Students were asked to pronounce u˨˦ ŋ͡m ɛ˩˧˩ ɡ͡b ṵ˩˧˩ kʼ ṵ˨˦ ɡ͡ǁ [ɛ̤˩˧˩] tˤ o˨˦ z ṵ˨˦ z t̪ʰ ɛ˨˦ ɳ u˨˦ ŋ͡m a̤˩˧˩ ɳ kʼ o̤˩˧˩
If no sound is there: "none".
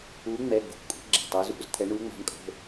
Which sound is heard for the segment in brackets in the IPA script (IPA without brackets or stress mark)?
ɛ̤˩˧˩